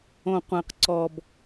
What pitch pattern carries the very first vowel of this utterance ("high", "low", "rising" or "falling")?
low